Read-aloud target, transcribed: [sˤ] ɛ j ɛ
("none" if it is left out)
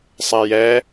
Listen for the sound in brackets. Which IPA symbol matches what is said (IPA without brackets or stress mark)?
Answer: sˤ